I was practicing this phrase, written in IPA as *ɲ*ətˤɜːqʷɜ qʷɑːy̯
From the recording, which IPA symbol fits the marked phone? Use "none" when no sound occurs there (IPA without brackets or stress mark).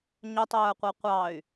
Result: ɲ